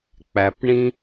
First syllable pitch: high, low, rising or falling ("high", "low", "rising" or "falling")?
low